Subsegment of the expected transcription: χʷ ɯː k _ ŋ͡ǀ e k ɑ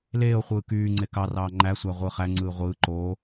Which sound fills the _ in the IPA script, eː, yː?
yː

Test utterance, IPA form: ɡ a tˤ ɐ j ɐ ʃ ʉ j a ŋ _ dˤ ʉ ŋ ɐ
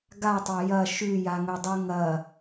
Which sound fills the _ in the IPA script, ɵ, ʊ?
ɵ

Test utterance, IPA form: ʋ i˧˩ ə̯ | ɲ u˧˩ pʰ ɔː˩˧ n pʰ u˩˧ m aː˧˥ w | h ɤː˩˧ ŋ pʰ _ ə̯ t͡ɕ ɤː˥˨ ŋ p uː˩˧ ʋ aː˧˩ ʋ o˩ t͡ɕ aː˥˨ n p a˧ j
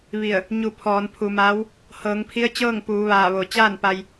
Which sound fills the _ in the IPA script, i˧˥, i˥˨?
i˧˥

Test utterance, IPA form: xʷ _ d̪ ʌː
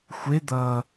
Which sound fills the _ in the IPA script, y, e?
e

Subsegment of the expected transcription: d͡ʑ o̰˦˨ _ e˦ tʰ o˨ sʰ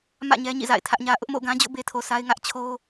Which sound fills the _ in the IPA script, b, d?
b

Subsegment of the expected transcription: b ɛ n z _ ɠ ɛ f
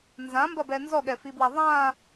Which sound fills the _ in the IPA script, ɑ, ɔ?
ɔ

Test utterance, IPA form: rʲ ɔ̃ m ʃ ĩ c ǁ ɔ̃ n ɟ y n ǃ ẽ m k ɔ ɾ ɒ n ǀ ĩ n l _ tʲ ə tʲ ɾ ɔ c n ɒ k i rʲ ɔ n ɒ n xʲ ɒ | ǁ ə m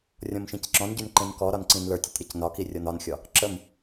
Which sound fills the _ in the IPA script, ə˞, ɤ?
ə˞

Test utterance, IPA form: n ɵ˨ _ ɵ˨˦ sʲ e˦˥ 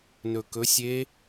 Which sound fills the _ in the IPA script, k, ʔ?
k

